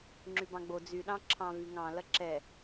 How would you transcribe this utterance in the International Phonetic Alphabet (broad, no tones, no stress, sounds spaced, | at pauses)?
ŋ͡ǁ y b ɑ̃ ɡ͡b o d͡z y ɗ ɑ̃ ǁʰ ɑ̃ v y ŋ ɑ̃ l ɐ ǁ ɛ